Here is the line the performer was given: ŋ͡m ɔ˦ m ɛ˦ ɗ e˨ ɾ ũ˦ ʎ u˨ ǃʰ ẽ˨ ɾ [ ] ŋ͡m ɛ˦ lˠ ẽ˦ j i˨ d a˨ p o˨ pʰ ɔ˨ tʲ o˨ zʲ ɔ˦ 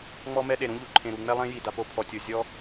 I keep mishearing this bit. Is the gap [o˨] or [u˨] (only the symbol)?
u˨